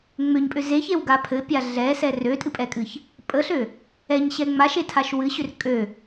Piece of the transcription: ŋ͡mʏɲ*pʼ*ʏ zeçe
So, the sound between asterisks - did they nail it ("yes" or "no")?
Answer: yes